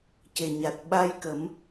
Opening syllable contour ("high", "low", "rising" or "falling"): low